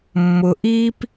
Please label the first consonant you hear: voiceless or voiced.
voiced